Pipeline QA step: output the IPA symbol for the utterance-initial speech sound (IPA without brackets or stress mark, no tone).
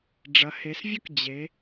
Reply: ɖ͡ʐ